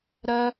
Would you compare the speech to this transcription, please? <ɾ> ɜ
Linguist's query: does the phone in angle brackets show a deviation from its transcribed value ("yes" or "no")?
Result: no